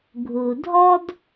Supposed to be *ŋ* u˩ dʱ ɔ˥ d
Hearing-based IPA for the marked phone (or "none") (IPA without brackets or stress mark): ɡʱ